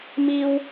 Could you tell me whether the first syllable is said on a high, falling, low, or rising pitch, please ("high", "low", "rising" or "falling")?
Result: high